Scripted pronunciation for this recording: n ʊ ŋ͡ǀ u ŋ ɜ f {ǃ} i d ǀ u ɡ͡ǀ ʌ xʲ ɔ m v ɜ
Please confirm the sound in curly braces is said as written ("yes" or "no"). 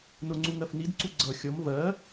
no